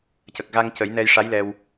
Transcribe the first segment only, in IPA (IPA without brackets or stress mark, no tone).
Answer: c